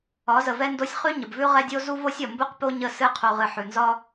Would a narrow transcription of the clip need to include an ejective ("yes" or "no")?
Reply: no